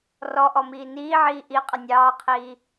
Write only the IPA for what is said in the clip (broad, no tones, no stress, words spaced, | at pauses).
rɔʔɔmiː niːʕiː ʔiqʼə nʲɑːqʰiː